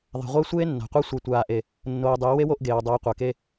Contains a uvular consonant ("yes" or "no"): yes